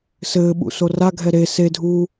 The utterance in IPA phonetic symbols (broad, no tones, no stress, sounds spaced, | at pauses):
s ɘː ɓ ṵ s o r a ɡʱ ɛ ɾ e s e dʱ uː